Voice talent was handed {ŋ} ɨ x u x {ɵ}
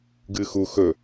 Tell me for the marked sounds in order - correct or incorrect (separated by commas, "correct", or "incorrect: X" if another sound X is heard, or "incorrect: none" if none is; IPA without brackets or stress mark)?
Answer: incorrect: ɡ, correct